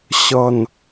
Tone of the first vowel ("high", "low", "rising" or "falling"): low